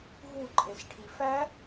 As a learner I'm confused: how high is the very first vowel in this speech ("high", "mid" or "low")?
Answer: high